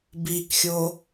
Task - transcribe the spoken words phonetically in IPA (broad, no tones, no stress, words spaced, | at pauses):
bikxʲo